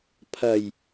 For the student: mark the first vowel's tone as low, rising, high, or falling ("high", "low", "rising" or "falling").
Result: low